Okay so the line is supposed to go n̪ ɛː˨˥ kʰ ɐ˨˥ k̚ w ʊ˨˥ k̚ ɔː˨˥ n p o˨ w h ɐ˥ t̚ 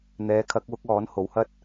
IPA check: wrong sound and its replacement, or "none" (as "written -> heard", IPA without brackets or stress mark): p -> h